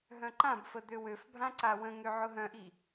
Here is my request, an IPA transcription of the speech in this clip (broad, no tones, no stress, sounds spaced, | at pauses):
ɦ œ̃ ǃ ã b f ə d̪ ø w ø f bʱ ã ǀ a w ə̃ ŋ ø ʕ ʊ ɦ œ̃ ʔ i